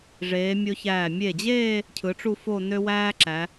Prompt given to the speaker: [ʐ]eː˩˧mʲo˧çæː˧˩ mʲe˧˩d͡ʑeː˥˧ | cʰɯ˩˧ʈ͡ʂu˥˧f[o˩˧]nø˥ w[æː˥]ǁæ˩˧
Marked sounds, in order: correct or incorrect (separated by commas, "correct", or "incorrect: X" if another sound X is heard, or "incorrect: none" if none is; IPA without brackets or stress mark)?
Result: correct, incorrect: o˥˧, correct